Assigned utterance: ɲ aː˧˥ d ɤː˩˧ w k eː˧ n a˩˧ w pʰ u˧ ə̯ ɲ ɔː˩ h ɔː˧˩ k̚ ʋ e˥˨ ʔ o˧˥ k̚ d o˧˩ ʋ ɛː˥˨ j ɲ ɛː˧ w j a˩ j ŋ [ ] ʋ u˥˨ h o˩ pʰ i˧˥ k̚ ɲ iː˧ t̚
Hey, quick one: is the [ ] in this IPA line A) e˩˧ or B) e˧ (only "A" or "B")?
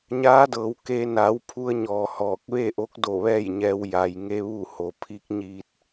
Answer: B